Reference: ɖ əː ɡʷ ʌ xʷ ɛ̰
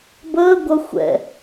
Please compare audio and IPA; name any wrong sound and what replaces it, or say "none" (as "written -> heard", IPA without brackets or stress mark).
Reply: ɖ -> b